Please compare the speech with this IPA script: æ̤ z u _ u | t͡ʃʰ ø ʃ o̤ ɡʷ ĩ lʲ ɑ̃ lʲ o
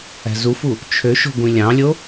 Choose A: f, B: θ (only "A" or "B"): A